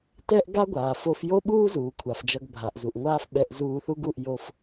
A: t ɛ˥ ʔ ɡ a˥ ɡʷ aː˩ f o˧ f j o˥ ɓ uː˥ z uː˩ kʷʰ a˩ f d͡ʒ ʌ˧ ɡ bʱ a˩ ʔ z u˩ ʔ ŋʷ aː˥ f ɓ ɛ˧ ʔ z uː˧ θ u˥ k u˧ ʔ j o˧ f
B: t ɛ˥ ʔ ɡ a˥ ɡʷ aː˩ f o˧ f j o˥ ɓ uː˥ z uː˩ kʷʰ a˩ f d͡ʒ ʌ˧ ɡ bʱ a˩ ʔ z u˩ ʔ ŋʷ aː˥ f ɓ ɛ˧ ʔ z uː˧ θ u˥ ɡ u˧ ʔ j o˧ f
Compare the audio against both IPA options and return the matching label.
B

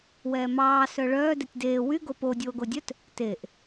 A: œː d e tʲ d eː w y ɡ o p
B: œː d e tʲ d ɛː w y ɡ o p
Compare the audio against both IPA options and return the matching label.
A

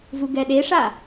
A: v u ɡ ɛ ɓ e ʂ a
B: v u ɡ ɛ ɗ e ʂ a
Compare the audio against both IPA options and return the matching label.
B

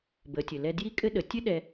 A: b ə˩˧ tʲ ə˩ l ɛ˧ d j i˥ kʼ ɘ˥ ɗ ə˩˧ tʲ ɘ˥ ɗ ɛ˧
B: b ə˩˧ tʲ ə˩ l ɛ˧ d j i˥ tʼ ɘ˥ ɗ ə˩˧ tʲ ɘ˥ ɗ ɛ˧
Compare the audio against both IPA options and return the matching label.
A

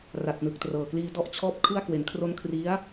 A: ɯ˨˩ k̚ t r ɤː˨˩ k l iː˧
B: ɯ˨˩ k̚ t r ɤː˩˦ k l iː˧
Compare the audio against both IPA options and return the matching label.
A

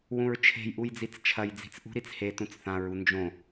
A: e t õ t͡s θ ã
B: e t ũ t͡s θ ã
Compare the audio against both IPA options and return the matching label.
B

